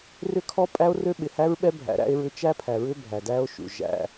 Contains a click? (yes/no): no